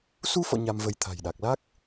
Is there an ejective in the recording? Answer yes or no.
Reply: no